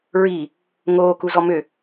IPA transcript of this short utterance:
ɹi | ŋoː kuzɔmʏ

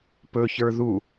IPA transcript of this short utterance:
pɵçə˞ ðu

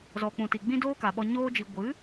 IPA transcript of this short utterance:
zɔ˨k͡pũ˨ti˨ ɡ͡bĩ˦doː˦ka˨ɓɔ˧ ɲoː˧d͡ʒi˨ ɡʷɨ˨˦

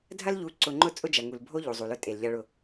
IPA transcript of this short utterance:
dʱɐ˦lʎu˨˦ ǀʊ˨ŋ͡ǃʊ˦ t͡sʼʊ˦d͡ʒɐ˨ŋu˨l bʱo˦ ʎu˨zˤu˨lʊ˦ tʼe˨lʎɐ˦ɭʊ˦

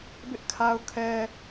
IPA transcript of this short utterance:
bɪ˦ʔkʰa˦ʊ̯kʰɛ˦

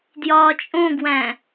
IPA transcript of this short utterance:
djɒːt͡ʃʼõɡwæ̃

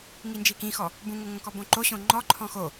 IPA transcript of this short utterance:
ŋind͡ʒikĩxɔ | bũŋoŋõkɔ bõǃoɕõ ŋ͡ǃɔ ǃʰɔ̃xo

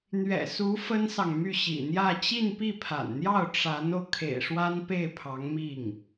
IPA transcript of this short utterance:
n̪ɥɛ̰˨˩su˧˥ fə˥nsɑ˨ŋmy˥˩ ɕḭ˨˩n̪jä˥˧ t͡ɕi˥˧npi˥˩pʰa̰˨˩nn̪jɑ˥˩ʊ̯ ʈ͡ʂa˧˥no˧ʊ̯ kʰḛ˨˩ɪ̯ʂwa˥npe˥˩ɪ̯ pʰɑ˧˥ŋmi˥˩ŋ

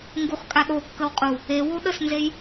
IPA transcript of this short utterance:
ŋɡuχkʼaɗokːəw qʼu | ewo ɗəsnzej

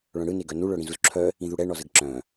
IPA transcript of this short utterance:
ɭœ̃ɽɯne ɡœnuɭœ ɽĩzuzǁʰœ | ĩðuɽɛ ɳɔzəɡǁœ̃

